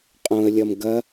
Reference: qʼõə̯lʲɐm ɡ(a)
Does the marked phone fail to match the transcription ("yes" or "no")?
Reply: yes